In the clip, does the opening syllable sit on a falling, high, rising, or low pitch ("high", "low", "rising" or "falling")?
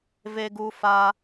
low